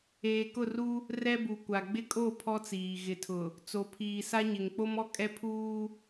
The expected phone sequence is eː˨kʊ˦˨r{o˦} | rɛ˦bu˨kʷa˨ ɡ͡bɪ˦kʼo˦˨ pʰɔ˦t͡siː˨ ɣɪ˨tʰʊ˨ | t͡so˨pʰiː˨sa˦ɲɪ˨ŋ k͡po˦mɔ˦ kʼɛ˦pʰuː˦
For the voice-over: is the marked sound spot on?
no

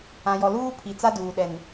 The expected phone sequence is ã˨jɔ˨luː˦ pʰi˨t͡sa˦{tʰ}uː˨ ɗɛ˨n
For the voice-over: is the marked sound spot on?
no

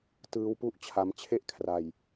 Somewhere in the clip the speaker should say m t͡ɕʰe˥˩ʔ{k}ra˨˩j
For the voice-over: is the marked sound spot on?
no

